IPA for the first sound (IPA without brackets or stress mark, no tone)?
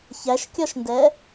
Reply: ç